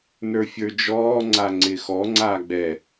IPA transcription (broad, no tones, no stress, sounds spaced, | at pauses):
n ə˞ fʲ ə˞ d͡ʒ ɔː ŋ͡ǀ a ŋ͡ǀ ɪ x ɔ ŋ͡ǀ aː ɡ͡b ɛ